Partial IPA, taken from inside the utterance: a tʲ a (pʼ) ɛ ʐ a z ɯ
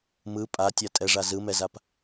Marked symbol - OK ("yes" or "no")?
no